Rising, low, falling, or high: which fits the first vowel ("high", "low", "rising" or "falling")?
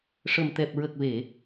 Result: low